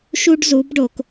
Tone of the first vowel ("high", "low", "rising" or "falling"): high